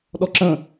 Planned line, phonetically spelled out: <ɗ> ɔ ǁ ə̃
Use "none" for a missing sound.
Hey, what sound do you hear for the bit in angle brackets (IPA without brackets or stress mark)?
ɗ